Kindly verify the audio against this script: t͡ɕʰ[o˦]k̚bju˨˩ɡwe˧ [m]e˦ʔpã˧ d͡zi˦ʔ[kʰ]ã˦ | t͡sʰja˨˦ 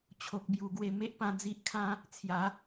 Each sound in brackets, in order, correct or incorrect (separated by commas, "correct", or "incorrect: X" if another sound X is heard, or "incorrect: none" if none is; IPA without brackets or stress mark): incorrect: o˨, correct, correct